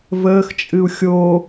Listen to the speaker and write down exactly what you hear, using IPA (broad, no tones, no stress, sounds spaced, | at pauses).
v əː x t͡ʃʼ ɨ u̯ xʲ o